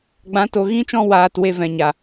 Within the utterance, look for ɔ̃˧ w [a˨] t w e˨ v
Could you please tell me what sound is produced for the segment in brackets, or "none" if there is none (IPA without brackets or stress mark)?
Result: aː˨